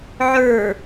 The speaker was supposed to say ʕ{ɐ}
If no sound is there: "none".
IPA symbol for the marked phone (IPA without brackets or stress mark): ə˞